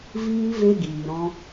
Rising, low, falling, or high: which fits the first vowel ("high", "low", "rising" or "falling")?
high